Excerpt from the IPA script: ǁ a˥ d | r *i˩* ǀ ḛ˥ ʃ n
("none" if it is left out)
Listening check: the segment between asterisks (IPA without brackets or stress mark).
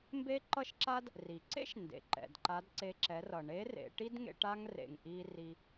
i˩